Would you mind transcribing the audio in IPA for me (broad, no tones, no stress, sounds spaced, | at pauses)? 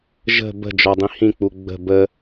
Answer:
ʒ ə̤ b ə̤ d͡ʒ ɔ dˤ ĩ h ĩ k͡p u ɡ͡b ə̤ b ə